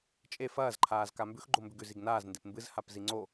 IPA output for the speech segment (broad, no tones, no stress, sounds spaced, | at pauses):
t͡ʃʼ e f ɐː z ǃʰ aː z k a m b ʉ x ɡ͡ǃ o m b ʉ ɡ ʉ z i ɡ n aː z n d e p m b ɨ z h a p z i ŋ͡ǀ o